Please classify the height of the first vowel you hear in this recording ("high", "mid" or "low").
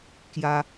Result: low